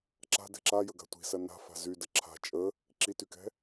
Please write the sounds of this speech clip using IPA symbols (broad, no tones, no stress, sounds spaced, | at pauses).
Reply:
ǁ a̤ d ɛ̤ ǁ a j ə ɡ a̤ tʷ i̤ s ɐ n a̤ f a̤ z y d ə ǁʰ a̤ t͡ʃʼ ə | ǁ i t y k ɛ̤